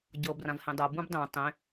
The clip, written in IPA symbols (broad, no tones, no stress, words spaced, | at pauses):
ɟɤ brãvhẽdˤɤ bũbdˤẽ tˤẽ